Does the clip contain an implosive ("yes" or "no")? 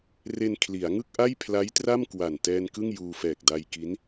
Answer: no